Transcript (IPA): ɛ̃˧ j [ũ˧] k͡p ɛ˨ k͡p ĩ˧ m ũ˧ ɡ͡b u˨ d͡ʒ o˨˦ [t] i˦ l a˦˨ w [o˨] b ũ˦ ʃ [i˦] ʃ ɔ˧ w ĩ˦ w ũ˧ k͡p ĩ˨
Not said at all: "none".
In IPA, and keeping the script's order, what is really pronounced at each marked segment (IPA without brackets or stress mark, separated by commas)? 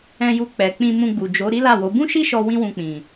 u˧, ɾ, o˨˦, i˦